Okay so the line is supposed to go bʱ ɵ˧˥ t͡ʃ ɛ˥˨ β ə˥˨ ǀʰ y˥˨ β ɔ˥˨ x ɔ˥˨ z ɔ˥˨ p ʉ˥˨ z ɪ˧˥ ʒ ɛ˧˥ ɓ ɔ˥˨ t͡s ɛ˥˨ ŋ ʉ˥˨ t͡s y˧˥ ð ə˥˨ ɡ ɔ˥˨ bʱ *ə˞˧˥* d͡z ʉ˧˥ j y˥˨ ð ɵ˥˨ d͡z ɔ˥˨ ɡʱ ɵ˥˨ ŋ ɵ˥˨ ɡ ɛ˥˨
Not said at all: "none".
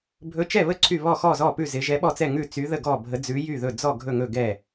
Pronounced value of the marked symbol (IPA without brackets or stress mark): ə˧˥